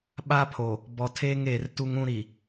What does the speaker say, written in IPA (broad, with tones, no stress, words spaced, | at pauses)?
ɓa˦pʰo˨ | bɔ˨tʰeː˦ŋeː˨r tu˦ŋũ˦ɾi˨